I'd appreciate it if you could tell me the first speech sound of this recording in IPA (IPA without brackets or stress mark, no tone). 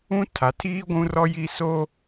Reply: ũ